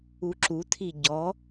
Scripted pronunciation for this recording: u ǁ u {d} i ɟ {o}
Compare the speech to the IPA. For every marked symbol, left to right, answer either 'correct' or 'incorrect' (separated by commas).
incorrect, incorrect